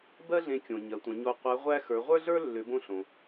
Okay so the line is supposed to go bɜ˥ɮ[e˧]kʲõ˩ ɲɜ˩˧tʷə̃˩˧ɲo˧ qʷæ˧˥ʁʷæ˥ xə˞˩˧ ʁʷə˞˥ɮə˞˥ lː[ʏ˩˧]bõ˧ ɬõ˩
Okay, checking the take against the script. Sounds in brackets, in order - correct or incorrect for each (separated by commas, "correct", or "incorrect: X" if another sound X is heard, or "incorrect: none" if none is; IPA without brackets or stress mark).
incorrect: ẽ˧, correct